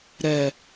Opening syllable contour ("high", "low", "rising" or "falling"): low